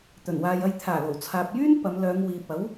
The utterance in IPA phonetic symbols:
t̪ ɵ˨˩ n w aː˨ j ɐ˧ j t̪ʰ aː˨˩ l o˨˩ w t͡sʰ aː˨ p̚ j yː˥ n p ɐ˨˧ m l œː˨˧ ŋ w iː˨ p̚ ɐ˨˥ w

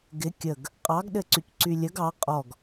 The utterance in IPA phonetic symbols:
ɡ ɪ kʲ ə ɡ | qʼ ɑ ɡ ɗ ɘ ǀ y c ǀ y lʲ ə ɡ ɑ qʼ ɔ ɡ

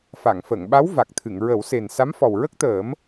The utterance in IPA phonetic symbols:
f a˨˩˨ ŋ f ə˨˩˨ ŋ ɓ a˧˥ w v a˨˩ k̚ t̪ʰ ɨ˨˩˨ ŋ ɹ ə˨˩˦ w s e˨˩ n s a˧˥ m f ɔ˨˩ w ɹ ə˦˥ k̚ t̪ əː˨˩˦ m

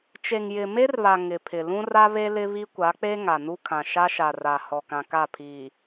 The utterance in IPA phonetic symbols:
t͡ʃ e˨ ŋ j ɪ˨ m e˦ r β a˨ ŋ ɪ˨ pʰ ɪ˨ l ũ˦ r a˦ β e˦ l ɪ˦ β i˦ kʷ a˨˦ k͡p e˦ ŋ a˨ n u˦ kʰ ã˨ ʃ a˦ ʃ a˨ r a˨ h ɔ˨ k ã˨ k a˦˨ pʰ iː˨

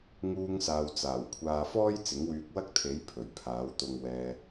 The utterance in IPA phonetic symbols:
ŋ uː˧ ŋ s aː˨ w t͡s aː˨˩ w kʷʰ aː˨ f ɔː˥ j t͡s ɪ˨˥ ŋ w yː˧ k̚ w ɐ˥ k̚ t̪ʰ e˨˥ j pʰ ɵ˨˩ ɥ pʰ aː˨˥ w t̪ ʊ˧ ŋ w ɛː˧

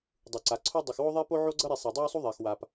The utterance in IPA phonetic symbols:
dˤ u˨ ǀ a˨ ǀʰ o˦ dˤ u˨ x w o˦ ðˤ e˦ p o˦ ʕ o˦ ɡ͡ǀ ʌ˦ ɾ i˨ sˤ e˨ dˤ ɛ˦ w sˤ u˦ ðˤ ɛ˨ x w a˨ p

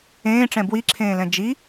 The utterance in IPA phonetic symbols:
ẽː ʈ͡ʂ ɛ̃ b w i ǁʰ ẽː l ɛ̃ d͡ʒ i

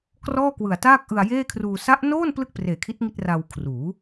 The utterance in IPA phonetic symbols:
k r ɔː˥˩ k w ɯ˨˩ a̯ t aː˥˩ k̚ ʔ ɯ˧ a̯ j eː˥˩ kʰ r uː˧ s a˦˥ ʔ n oː˥˩ n p l ɯ˥˩ k̚ p r eː˨˩ kʰ i˦˥ t̚ ŋ i˥˩ t̚ r a˧ w kʰ r uː˩˦

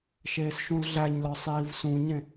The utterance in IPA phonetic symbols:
ʃ eː s ʃ ũ l ɮ æ ɲ l ɒ sˤ iː v s ũ ɲ ẽ

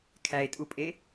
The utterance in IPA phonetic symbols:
kʰ æ e̯ tʼ u pʼ e

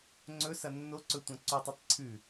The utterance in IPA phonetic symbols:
ŋ͡ǀ ɵ s ɐ nː o ǀ ɵ tʷ ɐ̃ ǀ u tˤ ɨ tˤ ǀʰ ʉ

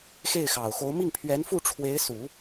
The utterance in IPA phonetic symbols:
x e˥˩ ɪ̯ x ɑ˨˩ ʊ̯ x o˧˥ ʊ̯ m i˥˩ ŋ pʰ ɥ ɛ˧˥ n f u˥˩ ʈ͡ʂʰ w e˧˥ ɪ̯ s u˨˩˦

